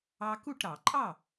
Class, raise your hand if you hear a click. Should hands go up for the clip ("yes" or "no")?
yes